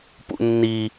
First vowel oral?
yes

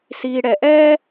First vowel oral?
yes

